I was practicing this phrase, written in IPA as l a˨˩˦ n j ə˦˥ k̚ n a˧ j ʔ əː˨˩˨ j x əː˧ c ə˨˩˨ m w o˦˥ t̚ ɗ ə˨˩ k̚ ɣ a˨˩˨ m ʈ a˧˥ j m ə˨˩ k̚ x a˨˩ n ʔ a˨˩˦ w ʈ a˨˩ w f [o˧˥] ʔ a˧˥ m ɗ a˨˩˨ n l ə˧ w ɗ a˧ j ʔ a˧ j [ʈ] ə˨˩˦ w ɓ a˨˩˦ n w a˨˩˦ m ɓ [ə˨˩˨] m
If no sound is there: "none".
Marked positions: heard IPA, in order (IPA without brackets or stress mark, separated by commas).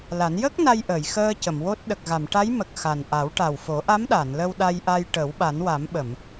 o˨˩˦, ʈ, ə˨˩˨